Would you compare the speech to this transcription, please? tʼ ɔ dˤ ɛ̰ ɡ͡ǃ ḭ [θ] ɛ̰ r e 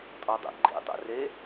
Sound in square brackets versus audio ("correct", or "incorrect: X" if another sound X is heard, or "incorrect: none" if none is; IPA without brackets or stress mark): incorrect: tˤ